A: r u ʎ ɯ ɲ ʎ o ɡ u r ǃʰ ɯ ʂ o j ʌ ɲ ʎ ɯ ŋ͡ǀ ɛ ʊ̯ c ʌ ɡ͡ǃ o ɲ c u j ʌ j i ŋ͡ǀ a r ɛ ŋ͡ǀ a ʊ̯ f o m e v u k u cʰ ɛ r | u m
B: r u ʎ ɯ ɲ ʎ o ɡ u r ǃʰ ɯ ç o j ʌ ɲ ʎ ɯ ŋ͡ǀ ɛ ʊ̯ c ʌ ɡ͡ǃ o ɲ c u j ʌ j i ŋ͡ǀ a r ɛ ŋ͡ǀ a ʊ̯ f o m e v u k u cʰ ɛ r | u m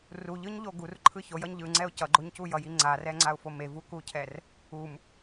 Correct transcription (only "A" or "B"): B